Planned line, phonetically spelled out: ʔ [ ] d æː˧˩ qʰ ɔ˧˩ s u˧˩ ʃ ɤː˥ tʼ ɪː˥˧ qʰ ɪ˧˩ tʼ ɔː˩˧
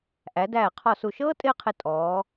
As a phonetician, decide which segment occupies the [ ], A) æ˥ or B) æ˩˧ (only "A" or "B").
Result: B